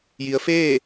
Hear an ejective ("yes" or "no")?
no